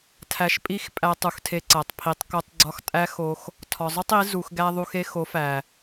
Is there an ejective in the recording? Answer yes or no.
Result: yes